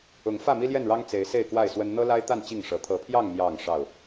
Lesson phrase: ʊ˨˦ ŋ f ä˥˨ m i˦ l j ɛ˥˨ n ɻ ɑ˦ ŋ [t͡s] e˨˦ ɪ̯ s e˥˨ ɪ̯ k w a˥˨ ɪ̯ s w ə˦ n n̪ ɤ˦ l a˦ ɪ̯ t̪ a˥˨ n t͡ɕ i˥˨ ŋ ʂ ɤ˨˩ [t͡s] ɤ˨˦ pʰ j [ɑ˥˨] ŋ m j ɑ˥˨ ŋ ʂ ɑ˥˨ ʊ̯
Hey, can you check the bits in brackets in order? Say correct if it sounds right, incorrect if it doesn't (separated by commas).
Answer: correct, incorrect, correct